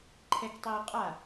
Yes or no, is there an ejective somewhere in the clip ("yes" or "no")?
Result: yes